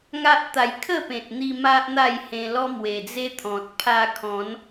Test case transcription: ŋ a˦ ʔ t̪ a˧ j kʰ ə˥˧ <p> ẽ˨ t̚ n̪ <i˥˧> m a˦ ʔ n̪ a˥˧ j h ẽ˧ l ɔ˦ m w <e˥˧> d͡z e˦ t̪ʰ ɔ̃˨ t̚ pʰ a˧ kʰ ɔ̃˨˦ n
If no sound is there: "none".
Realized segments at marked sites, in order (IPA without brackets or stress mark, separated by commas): p, i˧, e˨˩